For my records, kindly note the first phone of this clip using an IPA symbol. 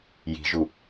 j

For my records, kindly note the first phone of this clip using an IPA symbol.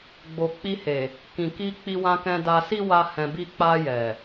ɡ͡b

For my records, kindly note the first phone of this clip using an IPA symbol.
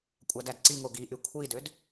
kʷʼ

